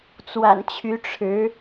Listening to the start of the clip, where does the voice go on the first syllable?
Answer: low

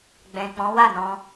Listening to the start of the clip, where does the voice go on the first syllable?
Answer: low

